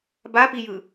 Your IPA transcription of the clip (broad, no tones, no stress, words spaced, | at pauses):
bapijɯ